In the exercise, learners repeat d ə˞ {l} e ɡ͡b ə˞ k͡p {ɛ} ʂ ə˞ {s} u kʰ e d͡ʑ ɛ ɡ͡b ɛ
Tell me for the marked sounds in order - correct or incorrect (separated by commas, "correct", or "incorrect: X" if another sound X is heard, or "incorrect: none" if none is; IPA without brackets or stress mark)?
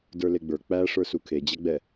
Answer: correct, incorrect: æ, correct